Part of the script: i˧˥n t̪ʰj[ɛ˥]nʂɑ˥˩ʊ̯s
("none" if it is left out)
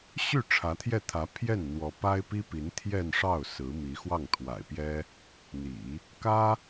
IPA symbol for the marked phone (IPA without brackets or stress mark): ɛ˥˧